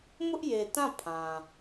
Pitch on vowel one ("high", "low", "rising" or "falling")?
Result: high